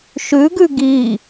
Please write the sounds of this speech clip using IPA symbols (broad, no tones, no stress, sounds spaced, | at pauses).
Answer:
ʃ ʉ ɡ ʉ ɡ i